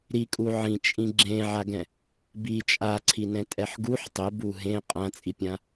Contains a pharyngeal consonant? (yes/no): yes